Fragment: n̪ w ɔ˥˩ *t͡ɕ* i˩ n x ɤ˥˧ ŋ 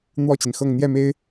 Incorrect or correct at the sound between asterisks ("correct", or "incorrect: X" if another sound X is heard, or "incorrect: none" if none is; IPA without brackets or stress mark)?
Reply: correct